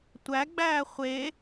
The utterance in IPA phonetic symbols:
tʷ æ ɡ͡b æː χʷ e

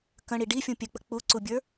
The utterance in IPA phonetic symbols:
k ə̃ ɽ i ɖ i fʲ ũ pʲ ɘ k͡p ə̤ k͡p u ǀ u bʲ ə˞

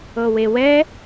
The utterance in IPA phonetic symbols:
ɤ w e w ɛ

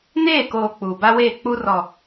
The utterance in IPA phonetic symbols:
n eː˦˨ k oː˨ k͡p uː˨ b a˦ w eː˦˨ k͡p u˦ r ɔ˨

